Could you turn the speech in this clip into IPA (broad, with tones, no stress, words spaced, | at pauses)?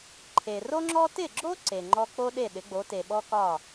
ǃʰe˩ro˥ŋ͡ǁɔ˥ tɪ˥˩ɡ͡ǁo˥ ǀe˩ŋ͡ǃɔ˥ k͡po˥ɗe˥˩ ɗɪ˩˥ɡ͡bo˩˥te˩ɓɔ˥ kɒ˥˩